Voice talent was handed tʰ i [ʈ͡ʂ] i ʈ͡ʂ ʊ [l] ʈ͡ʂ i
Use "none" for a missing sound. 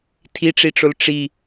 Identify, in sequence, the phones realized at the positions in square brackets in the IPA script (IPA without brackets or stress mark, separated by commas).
ʈ͡ʂ, l